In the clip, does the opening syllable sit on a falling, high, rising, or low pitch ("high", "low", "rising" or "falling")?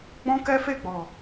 high